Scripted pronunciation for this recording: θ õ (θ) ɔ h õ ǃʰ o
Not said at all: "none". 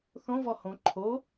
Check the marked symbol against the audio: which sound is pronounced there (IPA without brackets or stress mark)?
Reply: v